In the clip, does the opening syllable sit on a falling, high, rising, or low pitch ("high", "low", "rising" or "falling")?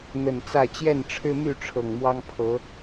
low